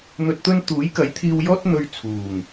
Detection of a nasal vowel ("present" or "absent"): absent